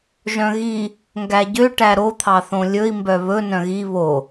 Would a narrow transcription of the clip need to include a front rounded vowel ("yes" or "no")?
yes